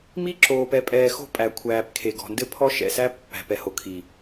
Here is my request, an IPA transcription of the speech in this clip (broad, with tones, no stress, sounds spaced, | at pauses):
m i˦ ǁ oː˨ p ɛ˨ pʼ ɛː˨ x o̤˦ pʼ æ˨ kʷʰ æː˨ p kʰ e˨ ɡ ɔ̤˨ n d ɘ˦ pʰ ɔ˦ ʃ ɛ̰˨ s æ˦ pː æ̤˨ p ɛ˨ h o˨ kʰ i˨